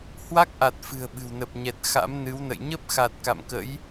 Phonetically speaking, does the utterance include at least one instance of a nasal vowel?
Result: no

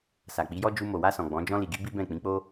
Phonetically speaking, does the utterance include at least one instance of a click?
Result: no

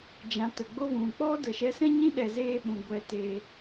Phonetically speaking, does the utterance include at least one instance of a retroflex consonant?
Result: no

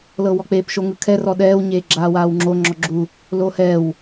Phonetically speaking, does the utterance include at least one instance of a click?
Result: yes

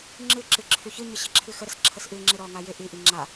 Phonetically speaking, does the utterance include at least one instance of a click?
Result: yes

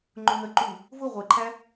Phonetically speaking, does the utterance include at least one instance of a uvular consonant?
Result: yes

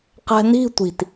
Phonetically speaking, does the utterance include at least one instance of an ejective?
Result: no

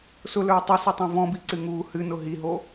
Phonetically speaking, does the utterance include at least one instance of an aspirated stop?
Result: no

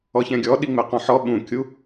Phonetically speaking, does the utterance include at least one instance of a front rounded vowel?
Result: no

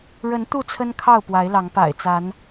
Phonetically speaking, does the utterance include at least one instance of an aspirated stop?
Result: yes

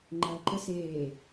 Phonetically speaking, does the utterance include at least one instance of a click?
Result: yes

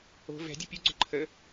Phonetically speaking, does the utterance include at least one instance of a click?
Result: yes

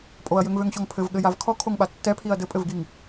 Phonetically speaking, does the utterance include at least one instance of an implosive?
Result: yes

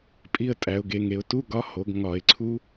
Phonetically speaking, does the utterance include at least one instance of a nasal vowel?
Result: no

